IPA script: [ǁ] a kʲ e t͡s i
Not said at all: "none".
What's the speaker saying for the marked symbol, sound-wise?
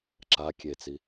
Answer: ǁ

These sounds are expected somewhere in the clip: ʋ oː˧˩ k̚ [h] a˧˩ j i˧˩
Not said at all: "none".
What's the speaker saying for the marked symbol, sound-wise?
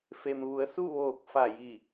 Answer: f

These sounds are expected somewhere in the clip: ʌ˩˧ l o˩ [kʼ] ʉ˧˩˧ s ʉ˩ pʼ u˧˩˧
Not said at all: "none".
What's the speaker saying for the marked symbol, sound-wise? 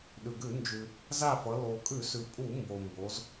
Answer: kʼ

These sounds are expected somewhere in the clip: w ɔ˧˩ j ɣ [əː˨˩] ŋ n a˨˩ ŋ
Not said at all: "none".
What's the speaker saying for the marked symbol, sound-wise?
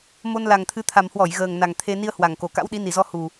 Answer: əː˨˩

